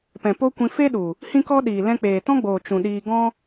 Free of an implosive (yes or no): no